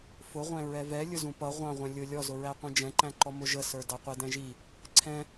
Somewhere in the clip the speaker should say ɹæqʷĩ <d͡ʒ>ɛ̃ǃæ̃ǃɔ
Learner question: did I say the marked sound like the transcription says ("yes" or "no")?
yes